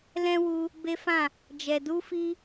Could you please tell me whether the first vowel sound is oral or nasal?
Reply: nasal